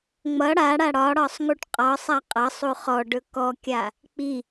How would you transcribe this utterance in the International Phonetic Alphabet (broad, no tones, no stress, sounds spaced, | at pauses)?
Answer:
ŋ͡m ʌ ɽ a ɽ a ɽ ɒ ɽ ɒ sˤ ŋ u ʈ qʼ ɒ sˤ a qʼ ʌ sˤ u χ ɔ ɖ ɵ k ɔ kʲ a | k͡p i